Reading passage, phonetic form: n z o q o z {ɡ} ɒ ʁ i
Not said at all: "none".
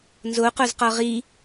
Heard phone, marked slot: q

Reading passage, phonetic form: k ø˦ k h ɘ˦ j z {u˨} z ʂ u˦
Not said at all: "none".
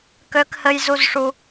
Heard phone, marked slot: u˦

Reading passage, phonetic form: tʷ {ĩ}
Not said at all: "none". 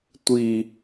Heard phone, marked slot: i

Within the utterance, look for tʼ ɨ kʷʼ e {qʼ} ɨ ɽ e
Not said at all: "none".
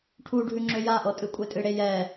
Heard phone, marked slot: tʼ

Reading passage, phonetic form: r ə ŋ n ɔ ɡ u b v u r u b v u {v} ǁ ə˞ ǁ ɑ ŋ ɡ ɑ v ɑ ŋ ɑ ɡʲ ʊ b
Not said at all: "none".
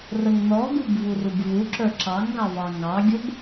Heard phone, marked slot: none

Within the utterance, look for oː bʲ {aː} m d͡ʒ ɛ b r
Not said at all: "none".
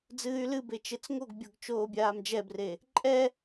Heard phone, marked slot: aː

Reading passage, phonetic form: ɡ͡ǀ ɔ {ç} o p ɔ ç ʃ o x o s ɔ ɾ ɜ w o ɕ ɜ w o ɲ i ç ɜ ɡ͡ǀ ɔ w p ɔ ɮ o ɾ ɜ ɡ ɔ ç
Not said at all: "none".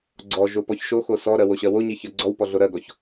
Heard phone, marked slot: ʒ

